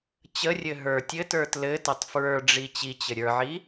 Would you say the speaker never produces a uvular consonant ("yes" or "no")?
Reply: yes